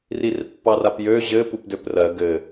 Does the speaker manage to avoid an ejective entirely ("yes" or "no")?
yes